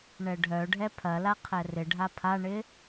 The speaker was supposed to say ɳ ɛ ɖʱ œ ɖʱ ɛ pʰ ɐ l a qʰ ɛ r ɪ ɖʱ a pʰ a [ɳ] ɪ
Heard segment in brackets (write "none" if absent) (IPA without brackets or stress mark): ɳ